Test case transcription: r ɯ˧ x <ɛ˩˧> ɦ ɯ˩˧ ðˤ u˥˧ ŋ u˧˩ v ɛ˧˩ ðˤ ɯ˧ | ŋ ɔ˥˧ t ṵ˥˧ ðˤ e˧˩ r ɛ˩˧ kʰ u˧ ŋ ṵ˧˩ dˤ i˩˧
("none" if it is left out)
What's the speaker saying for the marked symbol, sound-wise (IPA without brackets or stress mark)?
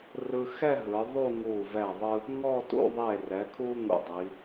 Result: ɛ˥˧